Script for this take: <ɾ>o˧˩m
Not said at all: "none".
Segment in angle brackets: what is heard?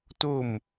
t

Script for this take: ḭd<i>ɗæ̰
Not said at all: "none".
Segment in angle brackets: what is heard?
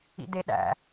e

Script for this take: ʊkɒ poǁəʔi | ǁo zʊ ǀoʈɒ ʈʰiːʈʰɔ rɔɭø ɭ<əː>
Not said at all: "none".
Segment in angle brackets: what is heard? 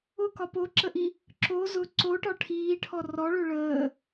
əː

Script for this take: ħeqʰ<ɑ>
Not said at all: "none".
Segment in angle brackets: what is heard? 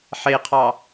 ɑ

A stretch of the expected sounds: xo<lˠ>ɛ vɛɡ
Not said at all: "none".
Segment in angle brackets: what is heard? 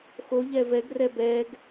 ʎ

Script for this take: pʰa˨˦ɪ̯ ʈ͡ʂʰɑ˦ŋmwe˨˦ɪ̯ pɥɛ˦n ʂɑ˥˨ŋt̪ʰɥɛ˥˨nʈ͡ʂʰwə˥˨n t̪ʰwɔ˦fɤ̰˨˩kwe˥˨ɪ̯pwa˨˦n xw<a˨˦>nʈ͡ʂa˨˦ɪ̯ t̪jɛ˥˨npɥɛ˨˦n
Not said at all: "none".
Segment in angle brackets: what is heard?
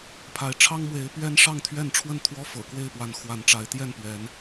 a˨˦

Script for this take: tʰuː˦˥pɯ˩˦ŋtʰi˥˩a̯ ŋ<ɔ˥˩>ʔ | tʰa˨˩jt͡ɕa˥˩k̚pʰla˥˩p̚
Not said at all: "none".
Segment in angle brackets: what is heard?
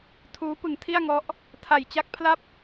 ɔ˦˥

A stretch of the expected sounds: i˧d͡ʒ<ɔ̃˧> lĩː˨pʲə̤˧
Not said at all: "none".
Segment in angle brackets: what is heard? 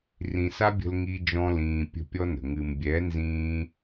ɔ̃˧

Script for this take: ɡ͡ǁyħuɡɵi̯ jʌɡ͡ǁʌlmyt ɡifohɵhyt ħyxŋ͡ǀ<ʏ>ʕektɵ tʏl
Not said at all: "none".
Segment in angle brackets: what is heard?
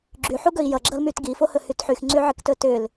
y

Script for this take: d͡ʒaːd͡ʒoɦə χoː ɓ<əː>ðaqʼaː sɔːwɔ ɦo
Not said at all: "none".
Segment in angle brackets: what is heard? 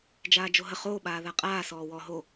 aː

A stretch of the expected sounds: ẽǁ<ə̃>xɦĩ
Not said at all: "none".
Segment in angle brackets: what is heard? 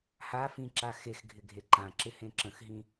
ə̃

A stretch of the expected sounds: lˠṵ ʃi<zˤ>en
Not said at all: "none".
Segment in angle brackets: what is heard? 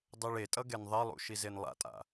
z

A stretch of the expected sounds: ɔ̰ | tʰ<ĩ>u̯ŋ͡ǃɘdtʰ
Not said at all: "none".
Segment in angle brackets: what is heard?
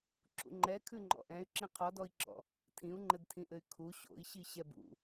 ĩ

